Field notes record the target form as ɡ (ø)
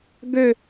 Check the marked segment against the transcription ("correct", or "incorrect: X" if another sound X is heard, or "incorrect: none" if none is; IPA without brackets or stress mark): correct